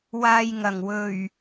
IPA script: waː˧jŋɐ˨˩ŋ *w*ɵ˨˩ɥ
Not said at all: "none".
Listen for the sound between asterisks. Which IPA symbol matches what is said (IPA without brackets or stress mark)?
w